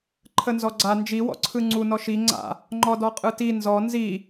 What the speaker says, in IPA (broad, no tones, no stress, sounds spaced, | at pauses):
ǃʰ ə n z ɔ ɡ͡ǀ a n d͡ʒ i w ɔ̰ ǀʰ ɯ ŋ͡ǀ u n ɔ ʃ i ŋ͡ǀ a̰ | ŋ͡ǃ ɔ d ɔ qʼ ɯ t i n z ɔ n z i